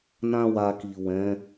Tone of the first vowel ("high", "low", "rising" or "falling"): high